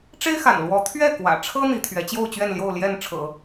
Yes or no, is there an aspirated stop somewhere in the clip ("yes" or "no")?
yes